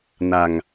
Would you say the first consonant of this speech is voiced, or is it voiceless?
voiced